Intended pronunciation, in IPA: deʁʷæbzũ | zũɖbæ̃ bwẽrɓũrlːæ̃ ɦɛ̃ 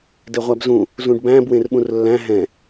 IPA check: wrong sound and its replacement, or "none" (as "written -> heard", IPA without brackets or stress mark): none